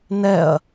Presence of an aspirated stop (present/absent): absent